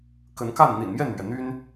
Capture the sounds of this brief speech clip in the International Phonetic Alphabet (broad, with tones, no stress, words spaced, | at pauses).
kə˨˦nka˥˨n n̪ḭ˨˩nmjɛ˥˨nmɥɛ˩n̪y˦n